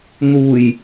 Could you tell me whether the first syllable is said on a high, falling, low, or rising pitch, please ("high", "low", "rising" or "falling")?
low